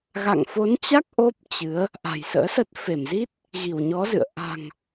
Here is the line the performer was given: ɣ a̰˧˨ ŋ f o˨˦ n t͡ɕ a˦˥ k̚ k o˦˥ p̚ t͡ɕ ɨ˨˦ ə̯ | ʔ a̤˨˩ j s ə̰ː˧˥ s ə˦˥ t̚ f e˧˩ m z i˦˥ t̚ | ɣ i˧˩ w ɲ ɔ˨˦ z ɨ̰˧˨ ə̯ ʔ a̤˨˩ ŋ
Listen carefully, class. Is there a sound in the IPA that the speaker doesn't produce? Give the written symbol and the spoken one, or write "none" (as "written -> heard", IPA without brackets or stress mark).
k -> ʔ